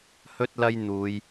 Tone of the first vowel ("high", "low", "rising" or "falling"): high